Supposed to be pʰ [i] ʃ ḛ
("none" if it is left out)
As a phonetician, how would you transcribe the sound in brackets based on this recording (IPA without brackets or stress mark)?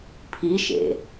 i